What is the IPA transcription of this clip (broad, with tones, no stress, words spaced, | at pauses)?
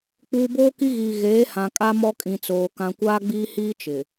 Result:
k͡puː˨boː˦ki˦ɣiː˨ ɣeː˨˦hã˨kʼa˦ mɔ˦kʼĩ˨ t͡soː˨ kã˨kʷaː˦ɡ͡biː˦hiː˦ t͡ʃɪ˨